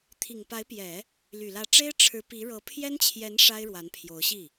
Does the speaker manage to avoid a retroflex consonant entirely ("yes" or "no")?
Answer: no